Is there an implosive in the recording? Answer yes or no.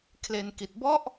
no